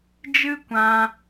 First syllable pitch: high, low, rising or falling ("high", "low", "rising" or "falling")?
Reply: high